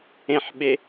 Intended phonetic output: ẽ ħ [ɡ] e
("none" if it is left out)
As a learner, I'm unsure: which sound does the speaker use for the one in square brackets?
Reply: ɓ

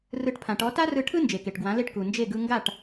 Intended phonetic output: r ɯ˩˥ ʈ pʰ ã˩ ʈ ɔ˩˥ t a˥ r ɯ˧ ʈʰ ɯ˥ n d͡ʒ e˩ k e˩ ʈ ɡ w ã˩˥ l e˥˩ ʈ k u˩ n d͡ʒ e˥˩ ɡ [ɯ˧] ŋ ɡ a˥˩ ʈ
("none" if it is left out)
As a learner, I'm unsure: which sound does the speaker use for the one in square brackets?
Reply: ɯ˧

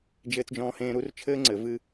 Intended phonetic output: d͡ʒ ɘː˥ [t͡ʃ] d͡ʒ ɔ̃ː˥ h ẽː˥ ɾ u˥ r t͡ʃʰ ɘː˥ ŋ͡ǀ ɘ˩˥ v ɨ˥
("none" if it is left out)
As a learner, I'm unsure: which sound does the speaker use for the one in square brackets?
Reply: t͡s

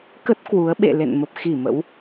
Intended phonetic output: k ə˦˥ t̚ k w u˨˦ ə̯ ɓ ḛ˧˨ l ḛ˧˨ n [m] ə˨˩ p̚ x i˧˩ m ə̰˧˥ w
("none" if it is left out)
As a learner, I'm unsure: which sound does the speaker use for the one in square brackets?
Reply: m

